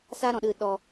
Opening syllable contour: high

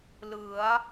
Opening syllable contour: rising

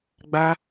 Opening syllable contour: high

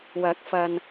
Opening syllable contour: rising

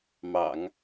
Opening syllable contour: low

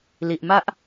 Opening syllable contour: low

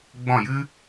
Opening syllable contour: falling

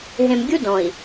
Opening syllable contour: low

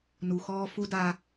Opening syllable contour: low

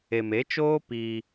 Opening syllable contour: low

